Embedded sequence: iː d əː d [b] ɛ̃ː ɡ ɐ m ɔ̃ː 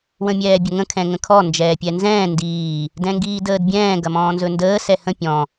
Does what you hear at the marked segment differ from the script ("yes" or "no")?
yes